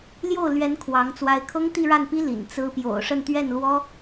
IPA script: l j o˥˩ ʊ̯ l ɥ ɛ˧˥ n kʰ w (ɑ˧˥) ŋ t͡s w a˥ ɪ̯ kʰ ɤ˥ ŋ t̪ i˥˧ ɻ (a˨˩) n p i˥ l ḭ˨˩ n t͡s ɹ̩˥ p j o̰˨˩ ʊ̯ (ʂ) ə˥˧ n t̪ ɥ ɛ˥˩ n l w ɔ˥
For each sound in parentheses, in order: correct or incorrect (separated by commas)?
correct, incorrect, correct